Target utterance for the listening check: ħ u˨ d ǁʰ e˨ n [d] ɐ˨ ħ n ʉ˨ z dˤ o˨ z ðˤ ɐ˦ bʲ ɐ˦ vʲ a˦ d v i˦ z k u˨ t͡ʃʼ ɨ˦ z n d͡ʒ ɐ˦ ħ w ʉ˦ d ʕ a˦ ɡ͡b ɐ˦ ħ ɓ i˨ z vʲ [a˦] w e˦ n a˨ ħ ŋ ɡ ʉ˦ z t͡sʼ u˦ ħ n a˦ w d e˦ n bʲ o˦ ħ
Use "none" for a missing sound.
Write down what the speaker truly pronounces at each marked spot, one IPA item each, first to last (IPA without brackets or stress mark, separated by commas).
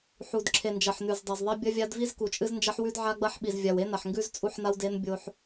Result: d͡ʒ, a˨